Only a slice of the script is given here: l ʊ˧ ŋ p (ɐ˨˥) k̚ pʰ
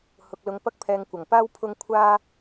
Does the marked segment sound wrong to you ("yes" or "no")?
yes